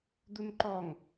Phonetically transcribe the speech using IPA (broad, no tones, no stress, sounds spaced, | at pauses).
d̪ u n ǃ ɔ ŋ